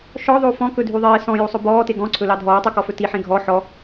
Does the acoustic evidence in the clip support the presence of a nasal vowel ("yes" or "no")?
yes